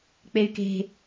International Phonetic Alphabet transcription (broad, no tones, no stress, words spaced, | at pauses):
k͡pey̯ke̤